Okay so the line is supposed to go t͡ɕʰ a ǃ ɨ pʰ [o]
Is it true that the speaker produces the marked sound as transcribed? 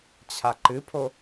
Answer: yes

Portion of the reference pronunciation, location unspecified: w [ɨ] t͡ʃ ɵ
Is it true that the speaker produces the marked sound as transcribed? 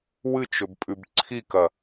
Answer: yes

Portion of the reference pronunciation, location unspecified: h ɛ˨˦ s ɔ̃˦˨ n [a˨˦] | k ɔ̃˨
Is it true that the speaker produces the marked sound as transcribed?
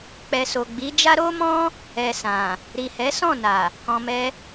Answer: no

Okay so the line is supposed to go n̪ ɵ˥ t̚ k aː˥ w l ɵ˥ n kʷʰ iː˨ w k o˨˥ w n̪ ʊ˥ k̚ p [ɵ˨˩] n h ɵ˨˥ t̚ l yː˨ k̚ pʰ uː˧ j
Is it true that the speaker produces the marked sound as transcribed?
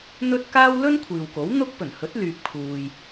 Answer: yes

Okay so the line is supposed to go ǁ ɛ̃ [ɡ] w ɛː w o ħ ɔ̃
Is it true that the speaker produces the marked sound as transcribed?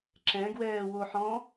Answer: yes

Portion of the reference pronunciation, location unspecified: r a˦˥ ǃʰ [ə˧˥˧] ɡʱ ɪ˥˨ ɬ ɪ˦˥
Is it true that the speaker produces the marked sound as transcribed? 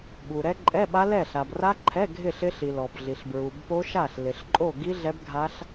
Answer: no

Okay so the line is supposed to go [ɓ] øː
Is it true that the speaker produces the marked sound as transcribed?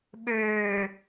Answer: yes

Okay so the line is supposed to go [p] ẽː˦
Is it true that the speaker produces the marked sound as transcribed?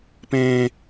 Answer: yes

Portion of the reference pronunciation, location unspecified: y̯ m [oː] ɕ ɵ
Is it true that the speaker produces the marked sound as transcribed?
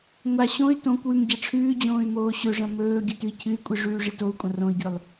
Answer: yes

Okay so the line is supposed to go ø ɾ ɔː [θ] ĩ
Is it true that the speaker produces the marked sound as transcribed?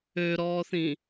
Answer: yes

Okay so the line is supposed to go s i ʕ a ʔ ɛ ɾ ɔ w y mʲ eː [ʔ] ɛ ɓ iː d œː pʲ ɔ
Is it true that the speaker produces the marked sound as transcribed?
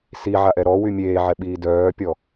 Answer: no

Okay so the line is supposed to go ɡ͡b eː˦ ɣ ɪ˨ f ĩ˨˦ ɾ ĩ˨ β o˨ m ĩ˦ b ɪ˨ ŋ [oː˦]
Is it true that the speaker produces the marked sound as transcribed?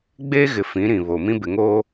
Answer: yes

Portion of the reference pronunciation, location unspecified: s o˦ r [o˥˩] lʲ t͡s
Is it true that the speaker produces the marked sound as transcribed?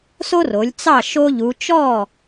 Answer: no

